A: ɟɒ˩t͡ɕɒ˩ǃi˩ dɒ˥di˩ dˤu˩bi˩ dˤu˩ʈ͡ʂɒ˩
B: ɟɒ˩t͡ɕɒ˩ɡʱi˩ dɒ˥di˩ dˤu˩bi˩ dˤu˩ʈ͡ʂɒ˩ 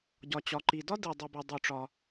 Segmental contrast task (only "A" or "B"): A